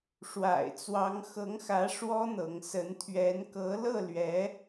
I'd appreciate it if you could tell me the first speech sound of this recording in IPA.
ʂ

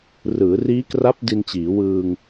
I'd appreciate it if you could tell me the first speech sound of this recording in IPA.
r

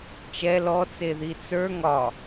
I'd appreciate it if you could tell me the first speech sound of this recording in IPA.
t͡ʃ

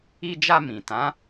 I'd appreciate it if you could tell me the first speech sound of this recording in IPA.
i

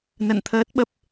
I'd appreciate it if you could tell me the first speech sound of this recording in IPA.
n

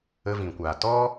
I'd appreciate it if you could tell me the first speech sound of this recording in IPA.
ə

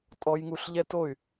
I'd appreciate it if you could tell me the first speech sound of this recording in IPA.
tʼ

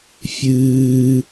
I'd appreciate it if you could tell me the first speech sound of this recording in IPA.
fʲ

